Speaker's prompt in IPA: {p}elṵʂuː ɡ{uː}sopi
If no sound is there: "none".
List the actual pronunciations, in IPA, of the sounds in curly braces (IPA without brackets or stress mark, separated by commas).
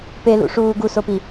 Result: p, u